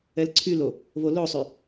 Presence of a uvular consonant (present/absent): absent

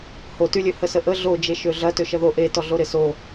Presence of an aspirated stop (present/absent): absent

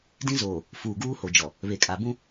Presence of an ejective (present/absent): present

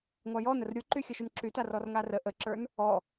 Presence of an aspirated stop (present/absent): absent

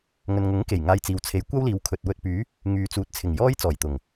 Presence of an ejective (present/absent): absent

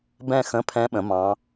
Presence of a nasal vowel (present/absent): present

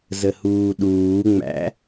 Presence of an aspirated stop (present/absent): absent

